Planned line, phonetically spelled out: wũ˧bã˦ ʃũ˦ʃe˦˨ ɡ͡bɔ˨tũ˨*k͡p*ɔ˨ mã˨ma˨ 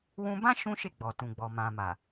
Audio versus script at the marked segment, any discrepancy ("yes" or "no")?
yes